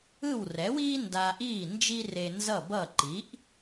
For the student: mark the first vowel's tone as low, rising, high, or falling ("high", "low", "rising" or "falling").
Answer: falling